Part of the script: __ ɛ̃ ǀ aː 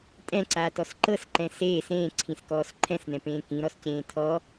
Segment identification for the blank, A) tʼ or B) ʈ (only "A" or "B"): A